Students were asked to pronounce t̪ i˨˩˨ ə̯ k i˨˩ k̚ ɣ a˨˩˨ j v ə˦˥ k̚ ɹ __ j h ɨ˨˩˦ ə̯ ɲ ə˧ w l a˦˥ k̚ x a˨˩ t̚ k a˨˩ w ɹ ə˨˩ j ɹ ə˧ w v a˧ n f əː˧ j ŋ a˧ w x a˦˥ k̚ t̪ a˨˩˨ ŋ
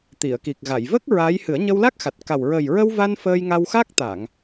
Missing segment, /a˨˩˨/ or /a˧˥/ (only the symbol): a˧˥